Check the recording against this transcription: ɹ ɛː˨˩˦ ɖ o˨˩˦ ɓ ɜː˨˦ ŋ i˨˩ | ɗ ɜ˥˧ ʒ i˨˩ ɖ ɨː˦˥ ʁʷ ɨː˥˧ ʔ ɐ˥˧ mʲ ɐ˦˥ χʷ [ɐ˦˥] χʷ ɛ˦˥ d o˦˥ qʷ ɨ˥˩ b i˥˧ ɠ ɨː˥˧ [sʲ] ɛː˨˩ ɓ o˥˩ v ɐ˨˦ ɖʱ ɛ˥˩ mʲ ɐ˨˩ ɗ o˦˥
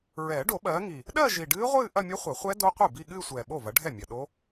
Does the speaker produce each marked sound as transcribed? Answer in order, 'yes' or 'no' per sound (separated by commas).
no, no